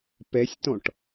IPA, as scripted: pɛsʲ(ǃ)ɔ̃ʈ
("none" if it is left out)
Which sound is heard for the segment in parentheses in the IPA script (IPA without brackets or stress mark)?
t